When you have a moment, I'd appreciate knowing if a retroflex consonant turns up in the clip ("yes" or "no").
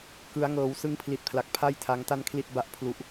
no